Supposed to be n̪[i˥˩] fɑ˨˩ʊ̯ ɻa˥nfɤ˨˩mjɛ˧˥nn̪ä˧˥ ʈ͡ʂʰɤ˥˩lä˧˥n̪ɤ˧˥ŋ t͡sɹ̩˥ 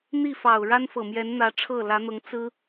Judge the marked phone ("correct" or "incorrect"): correct